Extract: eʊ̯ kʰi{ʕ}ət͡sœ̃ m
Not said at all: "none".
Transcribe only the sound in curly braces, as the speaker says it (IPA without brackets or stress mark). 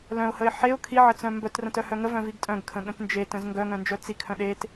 ʕ